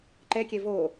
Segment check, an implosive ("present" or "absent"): absent